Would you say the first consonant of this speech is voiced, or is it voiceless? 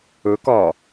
voiceless